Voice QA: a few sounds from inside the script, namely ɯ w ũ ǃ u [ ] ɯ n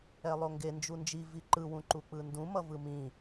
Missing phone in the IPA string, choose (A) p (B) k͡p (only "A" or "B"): B